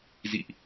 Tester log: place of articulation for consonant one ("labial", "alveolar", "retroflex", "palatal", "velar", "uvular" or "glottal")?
alveolar